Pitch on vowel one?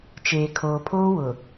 low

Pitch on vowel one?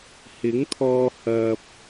rising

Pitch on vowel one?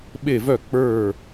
falling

